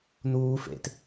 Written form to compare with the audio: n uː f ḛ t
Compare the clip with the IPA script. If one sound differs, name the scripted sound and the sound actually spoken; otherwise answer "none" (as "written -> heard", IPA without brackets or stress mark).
none